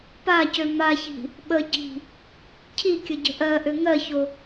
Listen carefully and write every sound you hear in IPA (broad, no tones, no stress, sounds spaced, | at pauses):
p a c ø m a ç i̤ | ɓ ə ɟ i̤ | cʰ i kʲ ə ɟ ə̤ ʔ ɜ ʔ ø ŋ ɜ ç o